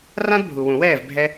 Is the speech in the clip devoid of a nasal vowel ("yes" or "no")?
no